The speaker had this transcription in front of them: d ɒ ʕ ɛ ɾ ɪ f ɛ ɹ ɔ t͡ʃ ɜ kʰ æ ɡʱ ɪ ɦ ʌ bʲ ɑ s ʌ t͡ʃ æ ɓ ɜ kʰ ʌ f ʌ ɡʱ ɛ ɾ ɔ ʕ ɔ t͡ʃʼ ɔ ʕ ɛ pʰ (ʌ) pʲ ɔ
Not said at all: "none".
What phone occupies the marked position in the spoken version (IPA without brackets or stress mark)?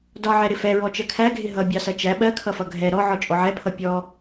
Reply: ʌ